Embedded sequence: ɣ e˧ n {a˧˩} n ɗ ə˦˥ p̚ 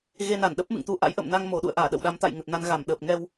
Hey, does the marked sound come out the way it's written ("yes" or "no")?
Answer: yes